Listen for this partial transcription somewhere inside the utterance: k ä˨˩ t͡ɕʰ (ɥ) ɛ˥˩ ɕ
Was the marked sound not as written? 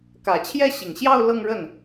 yes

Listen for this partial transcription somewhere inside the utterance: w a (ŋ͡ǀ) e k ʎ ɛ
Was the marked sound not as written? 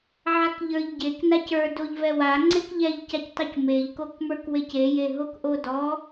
no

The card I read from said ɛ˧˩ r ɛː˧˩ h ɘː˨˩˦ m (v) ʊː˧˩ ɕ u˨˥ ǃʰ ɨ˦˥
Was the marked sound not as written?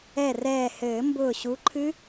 yes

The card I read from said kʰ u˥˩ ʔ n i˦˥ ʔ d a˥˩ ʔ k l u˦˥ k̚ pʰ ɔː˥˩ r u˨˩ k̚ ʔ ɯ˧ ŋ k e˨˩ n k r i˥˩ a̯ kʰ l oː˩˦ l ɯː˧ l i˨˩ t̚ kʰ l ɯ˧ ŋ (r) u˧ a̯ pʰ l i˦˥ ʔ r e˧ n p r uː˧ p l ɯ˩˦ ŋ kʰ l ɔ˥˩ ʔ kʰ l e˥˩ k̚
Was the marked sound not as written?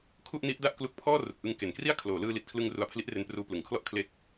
no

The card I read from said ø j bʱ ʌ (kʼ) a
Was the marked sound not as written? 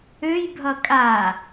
no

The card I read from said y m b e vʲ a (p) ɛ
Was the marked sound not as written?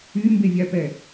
no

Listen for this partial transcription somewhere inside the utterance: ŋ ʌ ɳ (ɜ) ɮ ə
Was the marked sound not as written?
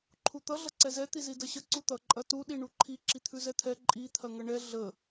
yes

